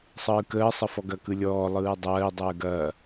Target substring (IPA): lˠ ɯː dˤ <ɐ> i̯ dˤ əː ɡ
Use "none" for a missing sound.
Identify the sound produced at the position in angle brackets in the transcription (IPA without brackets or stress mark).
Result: ɐː